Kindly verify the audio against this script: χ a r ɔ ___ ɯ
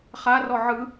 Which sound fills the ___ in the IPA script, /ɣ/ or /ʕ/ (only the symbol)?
ʕ